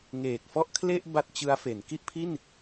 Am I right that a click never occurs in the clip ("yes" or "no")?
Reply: yes